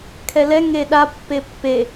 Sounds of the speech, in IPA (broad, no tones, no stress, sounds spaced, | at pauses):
kʰ ɛ l ɛ ŋ e ɗ a pː e pː e